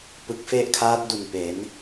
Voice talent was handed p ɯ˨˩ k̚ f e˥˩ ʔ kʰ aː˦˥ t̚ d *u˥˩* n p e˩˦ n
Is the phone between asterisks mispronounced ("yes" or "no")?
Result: yes